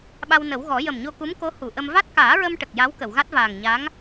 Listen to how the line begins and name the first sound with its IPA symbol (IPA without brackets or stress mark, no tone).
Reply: ɓ